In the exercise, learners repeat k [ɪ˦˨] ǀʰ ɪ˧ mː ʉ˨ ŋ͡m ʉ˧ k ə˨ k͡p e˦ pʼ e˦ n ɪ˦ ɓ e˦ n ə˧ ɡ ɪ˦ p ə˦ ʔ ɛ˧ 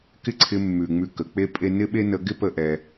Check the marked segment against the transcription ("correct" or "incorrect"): incorrect